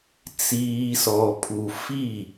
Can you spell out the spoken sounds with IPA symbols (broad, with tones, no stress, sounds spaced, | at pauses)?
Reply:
t͡s iː˨ s ɔ˨ pʰ u˨ f i˦˨